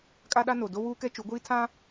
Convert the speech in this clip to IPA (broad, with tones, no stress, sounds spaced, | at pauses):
kʼ a˦ ɗ a˦ n o˨ d o˦ w uː˦ k ɛ˦ t͡ʃ u˨˦ ɡʷ iː˦ tʰ ã˦